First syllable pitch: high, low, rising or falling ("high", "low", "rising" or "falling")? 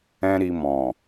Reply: high